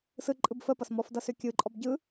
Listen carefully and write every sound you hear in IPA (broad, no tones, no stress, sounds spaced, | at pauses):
s ɯ ǃʼ ɯ b f ə p ʌ s m ɔ f d ʌ s ʏ kʲ ɯ ǃʼ ɔ b ɟ ɯ